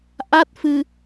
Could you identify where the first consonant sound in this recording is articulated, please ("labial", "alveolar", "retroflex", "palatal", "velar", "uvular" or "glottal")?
glottal